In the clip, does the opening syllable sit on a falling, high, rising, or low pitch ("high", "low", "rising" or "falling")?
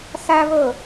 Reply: high